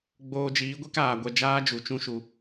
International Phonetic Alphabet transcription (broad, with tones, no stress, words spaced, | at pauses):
ɡ͡boː˧d͡ʒiː˨˦ɡʷe˦k aː˨ɡʷɛ˧d͡ʒaː˦ d͡ʒu˨t͡ʃũ˦ʃu˧